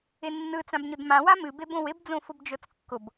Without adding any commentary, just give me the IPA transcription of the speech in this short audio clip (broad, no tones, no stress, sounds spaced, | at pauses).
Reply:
ɪ nː ɯ t͡s ã b ɲ o d m ã w a m ɨ b e b õ w ɪ b d͡z õ f ʊ b d͡ʒ o t͡s kː ʊ b